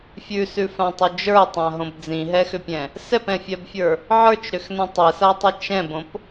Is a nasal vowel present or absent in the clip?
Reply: present